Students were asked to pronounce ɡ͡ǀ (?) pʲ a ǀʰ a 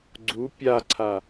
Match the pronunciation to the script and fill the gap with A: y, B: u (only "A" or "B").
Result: B